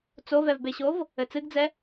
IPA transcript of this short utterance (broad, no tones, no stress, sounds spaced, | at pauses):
t͡s o v ɛ v b e ɕ o v | ɘ t͡s ɨ ɡ d͡z ɛ